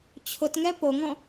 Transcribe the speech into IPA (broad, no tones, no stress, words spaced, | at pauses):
t͡ɕʰʊtŋɛ poŋɔ̃